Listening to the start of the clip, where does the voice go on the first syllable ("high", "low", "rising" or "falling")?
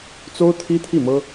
high